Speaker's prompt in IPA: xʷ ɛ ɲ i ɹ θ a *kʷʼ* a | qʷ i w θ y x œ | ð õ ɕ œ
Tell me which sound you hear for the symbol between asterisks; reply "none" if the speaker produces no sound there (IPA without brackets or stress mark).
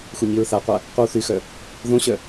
qʷ